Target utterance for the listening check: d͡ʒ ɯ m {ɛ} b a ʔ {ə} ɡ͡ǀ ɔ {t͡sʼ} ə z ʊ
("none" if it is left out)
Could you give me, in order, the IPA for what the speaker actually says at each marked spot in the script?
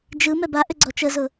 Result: ɛ, ʏ, t͡ʃ

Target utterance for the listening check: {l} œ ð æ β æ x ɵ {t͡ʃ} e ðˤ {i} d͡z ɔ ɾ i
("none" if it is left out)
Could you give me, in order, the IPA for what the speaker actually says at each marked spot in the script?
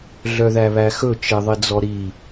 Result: ɮ, t͡ʃ, i

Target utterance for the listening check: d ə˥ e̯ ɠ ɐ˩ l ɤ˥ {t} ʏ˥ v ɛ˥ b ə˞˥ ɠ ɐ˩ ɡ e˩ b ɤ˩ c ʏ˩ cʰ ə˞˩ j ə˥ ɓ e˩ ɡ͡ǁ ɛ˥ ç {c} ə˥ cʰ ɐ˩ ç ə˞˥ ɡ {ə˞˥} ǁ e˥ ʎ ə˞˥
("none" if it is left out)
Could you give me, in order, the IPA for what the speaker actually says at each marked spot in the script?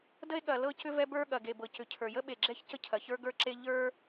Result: c, c, ə˞˥

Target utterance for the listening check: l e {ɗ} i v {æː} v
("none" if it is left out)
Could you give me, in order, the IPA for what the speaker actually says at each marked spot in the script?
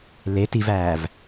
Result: t, æː

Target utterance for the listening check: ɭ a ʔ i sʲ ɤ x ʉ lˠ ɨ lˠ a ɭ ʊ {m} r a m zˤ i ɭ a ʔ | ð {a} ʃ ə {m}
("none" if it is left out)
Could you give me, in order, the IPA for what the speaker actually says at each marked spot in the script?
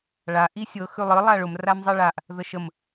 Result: m, ə, m

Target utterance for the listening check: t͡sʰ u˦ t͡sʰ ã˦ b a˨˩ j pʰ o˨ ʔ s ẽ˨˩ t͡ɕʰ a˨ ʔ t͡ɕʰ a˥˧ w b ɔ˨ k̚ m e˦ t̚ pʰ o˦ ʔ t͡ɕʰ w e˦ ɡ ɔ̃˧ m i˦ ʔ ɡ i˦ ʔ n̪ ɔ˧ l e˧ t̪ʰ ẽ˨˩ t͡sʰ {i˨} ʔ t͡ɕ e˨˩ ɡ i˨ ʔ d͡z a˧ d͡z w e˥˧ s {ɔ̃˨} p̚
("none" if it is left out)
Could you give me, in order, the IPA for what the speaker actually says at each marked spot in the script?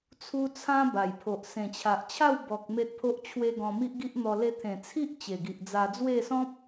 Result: i˦, ɔ̃˦

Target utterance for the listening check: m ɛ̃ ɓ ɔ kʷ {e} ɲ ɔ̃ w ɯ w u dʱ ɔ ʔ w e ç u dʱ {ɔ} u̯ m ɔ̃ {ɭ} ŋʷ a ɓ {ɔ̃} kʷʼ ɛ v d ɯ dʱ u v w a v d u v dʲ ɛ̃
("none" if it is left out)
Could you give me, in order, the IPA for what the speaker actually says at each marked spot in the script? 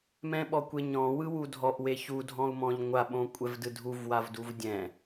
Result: e, ɔ̃, ʎ, õ

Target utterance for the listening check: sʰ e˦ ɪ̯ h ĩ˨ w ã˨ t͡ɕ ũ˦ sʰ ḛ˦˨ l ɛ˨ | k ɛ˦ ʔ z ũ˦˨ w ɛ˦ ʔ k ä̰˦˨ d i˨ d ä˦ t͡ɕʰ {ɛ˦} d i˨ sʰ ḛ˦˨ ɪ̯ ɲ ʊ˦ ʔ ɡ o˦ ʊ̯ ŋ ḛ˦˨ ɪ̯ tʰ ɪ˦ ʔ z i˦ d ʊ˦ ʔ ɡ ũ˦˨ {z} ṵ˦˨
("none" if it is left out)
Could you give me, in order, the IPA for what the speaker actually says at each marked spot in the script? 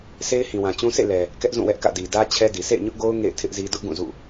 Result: ɛ˦, z

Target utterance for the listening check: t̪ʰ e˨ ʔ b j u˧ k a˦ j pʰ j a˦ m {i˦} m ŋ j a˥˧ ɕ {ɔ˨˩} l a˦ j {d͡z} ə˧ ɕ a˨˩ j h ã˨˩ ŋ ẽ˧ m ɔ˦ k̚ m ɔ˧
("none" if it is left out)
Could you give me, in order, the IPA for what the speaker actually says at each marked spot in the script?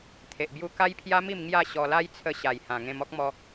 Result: i˥˧, ɔ˧, t͡sʰ

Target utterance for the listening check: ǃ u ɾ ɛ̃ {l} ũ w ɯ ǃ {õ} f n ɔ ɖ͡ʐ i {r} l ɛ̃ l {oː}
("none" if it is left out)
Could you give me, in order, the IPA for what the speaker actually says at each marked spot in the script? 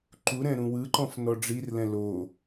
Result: ɾ, ɔ̃, r, o

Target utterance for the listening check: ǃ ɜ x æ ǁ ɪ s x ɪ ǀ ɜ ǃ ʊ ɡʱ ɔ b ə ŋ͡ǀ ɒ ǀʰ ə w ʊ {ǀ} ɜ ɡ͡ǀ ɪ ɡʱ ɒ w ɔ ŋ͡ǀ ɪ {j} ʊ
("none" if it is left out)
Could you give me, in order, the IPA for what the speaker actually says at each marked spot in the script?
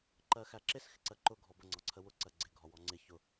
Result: ǀ, ç

